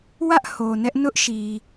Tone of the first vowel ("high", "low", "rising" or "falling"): high